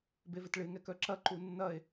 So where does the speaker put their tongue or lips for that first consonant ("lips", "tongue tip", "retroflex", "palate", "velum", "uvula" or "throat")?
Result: lips